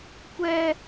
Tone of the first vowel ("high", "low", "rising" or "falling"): high